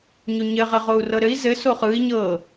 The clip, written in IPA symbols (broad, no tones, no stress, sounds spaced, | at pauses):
ɲ o ɲ ɘ ʁ ɘ ʁ o u̯ r ɤ ɾ ɘ i̯ z ɘ s o χ ɯ i̯ ɲ ɤ